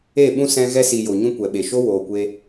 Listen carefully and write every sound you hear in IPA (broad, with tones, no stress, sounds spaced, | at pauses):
e˦˨ ɓ ũ˦ s ɛ̃˧ ɣ ɛ˦ s i˨ j o˨ ɲ ũ˦ kʷ ɛ˨ ɓ e˨ ʃ o˦ w oː˨ kʷ e˧